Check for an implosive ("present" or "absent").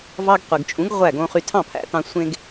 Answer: absent